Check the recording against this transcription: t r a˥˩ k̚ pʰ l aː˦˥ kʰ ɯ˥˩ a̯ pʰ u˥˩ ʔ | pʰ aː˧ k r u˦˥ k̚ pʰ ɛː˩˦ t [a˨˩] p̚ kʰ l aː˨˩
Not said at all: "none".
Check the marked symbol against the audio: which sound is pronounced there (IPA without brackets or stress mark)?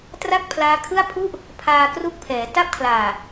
a˥˩